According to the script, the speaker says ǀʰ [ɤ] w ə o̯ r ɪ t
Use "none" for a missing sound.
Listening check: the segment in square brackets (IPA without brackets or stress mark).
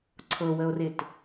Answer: ɤ